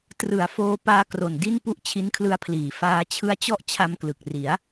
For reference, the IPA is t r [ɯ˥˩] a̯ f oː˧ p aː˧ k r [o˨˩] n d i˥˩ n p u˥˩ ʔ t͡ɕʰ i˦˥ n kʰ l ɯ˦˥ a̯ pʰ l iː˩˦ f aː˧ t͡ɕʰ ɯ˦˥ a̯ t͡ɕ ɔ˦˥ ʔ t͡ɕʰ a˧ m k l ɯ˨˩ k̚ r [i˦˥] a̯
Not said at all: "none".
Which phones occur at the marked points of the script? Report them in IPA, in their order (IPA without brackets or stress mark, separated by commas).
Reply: ɯ˩˦, o˨˩, i˩˦